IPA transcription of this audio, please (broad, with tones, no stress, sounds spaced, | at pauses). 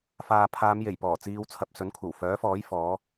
f aː˨ pʰ aː˨˧ m j e˨˩ j p ɔː˨˩ t͡s iː˧ w t͡sʰ ɐ˧ p̚ s ɵ˨˥ n kʷʰ ɐ˨˩ w f œː˨˥ f ɔː˨˥ j f ɔː˨˥